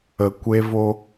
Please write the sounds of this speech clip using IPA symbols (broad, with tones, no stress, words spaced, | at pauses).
ə˨kʷe˧vo˧